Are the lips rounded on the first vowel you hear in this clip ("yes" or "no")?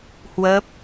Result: no